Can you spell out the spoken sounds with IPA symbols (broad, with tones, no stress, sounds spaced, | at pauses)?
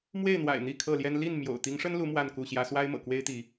m w e˥˨ ɪ̯ n̪ w a̰˨˩ ɪ̯ n̪ i˥˨ kʰ ɤ˥˨ l j ɛ˦ n l i˥˨ n m j o̰˨˩ ʊ̯ t̪ i˨˦ ŋ ʂ ə˦ n l u˨˦ m w a˥˨ n k u˥˨ ɕ j ä˦ s w a˦ ɪ̯ m ɤ̰˨˩ k w e˦ ɪ̯ t̪ i˨˦